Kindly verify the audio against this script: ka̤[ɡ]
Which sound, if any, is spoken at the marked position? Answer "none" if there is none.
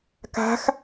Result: x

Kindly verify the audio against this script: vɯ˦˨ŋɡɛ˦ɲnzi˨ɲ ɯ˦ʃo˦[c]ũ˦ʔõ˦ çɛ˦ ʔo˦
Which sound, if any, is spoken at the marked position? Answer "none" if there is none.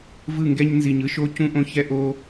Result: c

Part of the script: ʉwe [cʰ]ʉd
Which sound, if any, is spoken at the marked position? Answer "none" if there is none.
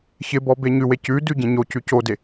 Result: c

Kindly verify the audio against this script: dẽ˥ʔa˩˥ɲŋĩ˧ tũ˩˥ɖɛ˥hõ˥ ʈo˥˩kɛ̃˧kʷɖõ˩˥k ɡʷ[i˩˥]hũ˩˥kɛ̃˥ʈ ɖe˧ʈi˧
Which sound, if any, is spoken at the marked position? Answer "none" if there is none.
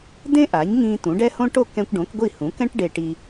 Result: i˥˩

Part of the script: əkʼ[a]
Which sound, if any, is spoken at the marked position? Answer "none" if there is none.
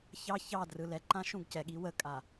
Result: a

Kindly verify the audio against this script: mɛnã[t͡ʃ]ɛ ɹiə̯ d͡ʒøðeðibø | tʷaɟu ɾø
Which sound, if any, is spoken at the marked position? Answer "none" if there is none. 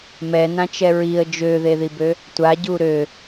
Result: t͡ʃ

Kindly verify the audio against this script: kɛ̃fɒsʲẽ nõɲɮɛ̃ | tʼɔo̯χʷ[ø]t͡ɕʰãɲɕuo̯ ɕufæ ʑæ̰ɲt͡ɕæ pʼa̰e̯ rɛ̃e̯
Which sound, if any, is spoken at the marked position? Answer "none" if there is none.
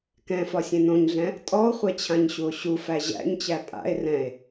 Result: ɛ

